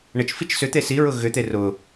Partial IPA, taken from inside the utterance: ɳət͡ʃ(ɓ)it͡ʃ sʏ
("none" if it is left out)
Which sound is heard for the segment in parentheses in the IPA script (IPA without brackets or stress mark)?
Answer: f